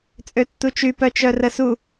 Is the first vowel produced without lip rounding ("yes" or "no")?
no